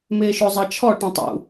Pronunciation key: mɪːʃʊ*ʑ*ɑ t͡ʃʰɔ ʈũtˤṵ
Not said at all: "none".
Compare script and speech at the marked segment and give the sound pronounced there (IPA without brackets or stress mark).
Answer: zˤ